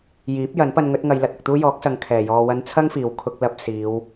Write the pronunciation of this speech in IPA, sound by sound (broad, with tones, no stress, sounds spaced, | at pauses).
j iː˨˥ p̚ j ɐ˨˥ n p ɐ˧ n ŋ ɵ˨˥ t̚ ŋ ɐ˨˧ j l ɐ˧ t̚ ɐ˨ k̚ t̪ uː˥ j ɔː˨˥ k̚ s ɐ˨ ŋ kʰ ɛː˨˩ j ɔː˨ w ɐ˧ n t͡sʰ ɐ˥ ŋ f iː˨˩ w kʰ ʊ˧ k̚ l ɐ˧ p̚ s iː˨˧ w